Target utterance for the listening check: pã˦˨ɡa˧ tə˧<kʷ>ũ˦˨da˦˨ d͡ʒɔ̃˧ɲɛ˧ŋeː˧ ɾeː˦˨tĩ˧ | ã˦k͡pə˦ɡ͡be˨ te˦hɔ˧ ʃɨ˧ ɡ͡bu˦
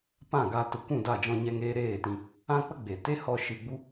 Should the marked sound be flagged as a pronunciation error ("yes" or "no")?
no